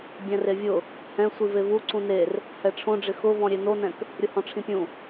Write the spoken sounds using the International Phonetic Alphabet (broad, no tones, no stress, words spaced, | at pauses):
bʲɛ̃revʲʊ | hɛ̃ sʷivevu ǀũner | hɛʈ͡ʂʰõɖ͡ʐɪ xʊvɔ̃ ɾʲenonɛ̃k | ɾʲʊhɔ̃ʈ͡ʂʰĩpʲũ